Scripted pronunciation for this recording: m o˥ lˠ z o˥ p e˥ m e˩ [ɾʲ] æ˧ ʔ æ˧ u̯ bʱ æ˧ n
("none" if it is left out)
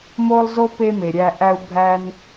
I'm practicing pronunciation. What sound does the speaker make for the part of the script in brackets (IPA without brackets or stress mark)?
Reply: ɾʲ